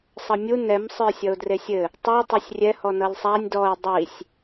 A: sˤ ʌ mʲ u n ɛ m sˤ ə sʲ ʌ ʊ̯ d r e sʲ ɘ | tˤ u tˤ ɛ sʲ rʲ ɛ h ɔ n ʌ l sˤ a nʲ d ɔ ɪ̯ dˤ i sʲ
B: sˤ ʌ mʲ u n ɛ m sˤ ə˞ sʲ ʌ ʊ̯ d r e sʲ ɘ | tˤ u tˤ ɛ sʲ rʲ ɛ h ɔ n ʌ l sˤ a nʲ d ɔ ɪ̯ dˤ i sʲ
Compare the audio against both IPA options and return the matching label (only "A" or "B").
B